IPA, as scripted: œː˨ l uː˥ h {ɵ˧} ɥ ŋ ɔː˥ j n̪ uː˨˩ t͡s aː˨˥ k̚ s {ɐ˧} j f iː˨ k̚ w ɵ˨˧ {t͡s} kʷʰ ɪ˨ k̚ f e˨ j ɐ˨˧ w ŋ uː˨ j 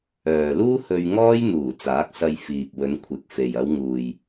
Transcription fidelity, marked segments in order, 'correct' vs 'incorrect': correct, correct, incorrect

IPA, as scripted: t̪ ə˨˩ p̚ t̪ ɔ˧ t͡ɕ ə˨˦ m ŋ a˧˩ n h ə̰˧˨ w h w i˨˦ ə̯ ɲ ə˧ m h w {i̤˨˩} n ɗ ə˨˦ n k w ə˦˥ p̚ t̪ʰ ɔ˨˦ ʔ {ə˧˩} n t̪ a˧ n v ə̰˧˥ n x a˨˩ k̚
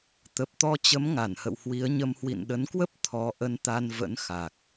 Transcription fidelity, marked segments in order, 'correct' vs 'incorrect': incorrect, incorrect

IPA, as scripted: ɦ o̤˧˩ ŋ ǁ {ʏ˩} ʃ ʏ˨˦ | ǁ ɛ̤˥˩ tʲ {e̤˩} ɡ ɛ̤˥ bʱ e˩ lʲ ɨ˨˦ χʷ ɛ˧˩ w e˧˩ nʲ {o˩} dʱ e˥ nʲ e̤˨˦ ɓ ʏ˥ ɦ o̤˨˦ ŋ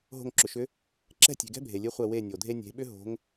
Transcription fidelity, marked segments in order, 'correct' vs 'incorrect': correct, correct, correct

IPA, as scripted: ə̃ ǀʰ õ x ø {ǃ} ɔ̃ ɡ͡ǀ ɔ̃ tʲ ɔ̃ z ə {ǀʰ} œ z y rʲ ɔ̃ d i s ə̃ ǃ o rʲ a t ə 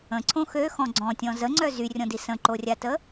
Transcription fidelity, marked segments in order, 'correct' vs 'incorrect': incorrect, incorrect

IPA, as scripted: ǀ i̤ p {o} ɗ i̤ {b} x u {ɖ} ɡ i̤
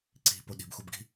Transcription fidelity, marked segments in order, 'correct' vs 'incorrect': correct, correct, incorrect

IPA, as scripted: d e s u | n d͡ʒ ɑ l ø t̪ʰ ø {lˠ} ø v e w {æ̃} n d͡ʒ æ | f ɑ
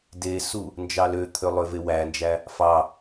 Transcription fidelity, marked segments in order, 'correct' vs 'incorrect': correct, incorrect

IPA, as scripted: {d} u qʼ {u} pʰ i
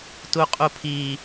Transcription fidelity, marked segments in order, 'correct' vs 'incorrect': incorrect, correct

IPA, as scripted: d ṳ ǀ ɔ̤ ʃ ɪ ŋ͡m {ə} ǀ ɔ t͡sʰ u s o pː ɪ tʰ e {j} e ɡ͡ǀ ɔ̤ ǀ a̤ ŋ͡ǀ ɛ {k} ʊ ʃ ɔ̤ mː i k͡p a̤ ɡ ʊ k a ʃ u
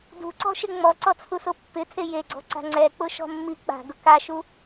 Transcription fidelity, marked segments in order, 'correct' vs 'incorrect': incorrect, correct, incorrect

